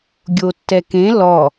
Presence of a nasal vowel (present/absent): present